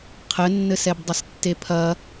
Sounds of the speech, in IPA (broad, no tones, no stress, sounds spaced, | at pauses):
qʰ ɘ nː ɘ s ɛ b dˤ ɘ s tː e pʰ ɐ